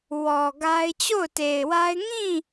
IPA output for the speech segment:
w ɔ˨ ɡ a˦ ɪ̯ t͡ɕ o˦˨ ʊ̯ t e˨ ɪ̯ w a˦ ɪ̯ ŋ ĩ˦˨

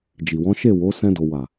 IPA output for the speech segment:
d͡ʒ i˨ w ɔ̃˨˦ ʃ e˦˨ w o˨˦ s ɛ̃˧ d o˨ w a˨

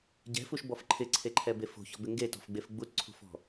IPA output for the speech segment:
ɟ ɛ̤ f u ʃ b ɔ f ǃʰ ɪ ǀʰ e ǃʰ ɛ b e f o̤ ç ɔ̤ b ɪ ŋ ɡ e t ɔ̤ f ɡ͡b e f ɡ͡b u t ǀʰ ṳ f ɔ̤

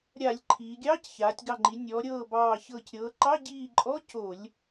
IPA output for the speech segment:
ɾʲ a˧˩˧ lʲ ǃʰ iː˩˧ ɡʲ ɑː˧˥˧ c ç aː˩˧ tʲ ɡ ɑ˧˩ ŋ͡ǃ i˩˧ nʲ ɔː˩˧ ɾʲ ɤː˧˩ b ɑː˧˩ ç ɤː˧˩ c ɾʲ ɤː˩˧ ǃ ɑ˧˥˧ ɟ iː˧˩ ǃʼ ɔ˧˥˧ c o˧˩˧ lʲ

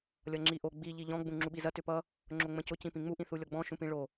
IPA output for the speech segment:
lʲ ʌ ŋ͡ǁ i ʔ o ɡ͡b i ʎ i ʎ ɔ̃ ɡ͡b ũ ŋ͡ǁ u ɓ i z ɐ t ʏ p ʌ | ŋ͡ǁ o ŋ͡m ə̃ c ʊ c ĩ p ĩ ŋ͡m u ʔ ĩ θ u lʲ ɔ ɡ͡b ɔ̃ ʃ ũ p ĩ ɭ o

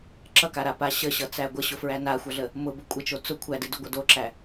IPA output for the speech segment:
ǁ ʌ k a ɾ a p a ɕ ə ɕ ʌ t͡s æ ɡʷ ə ɕ ʊ f ɹ æ n a xʷ ʌ ɮ ə | m ʊ b ə kʷʼ ə t͡ʃ o t͡s ʊ kʷʰ æ d ɨ d ʊ ɡʷ ʌ d o ǁ æ

